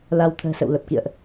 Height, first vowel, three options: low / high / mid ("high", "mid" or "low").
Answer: low